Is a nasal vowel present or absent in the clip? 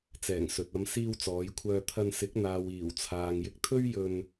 absent